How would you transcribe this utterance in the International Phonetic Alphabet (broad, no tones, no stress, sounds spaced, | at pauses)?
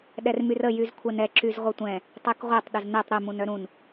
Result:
ɗ ɛ r m y r ə j y z kʷʰ ɛ n ɛ ǁ y z ʁʷ ɘ tʷ ɛ̃ | tˤ ɛ k ʁʷ ɛ tˤ ɗ ə z n ɛ tˤ ɾ ɘ m ũ n œ ɾ ũ n